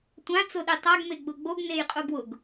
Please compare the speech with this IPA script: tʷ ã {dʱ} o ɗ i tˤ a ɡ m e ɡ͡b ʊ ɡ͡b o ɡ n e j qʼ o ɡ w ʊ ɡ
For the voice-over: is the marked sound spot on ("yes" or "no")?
no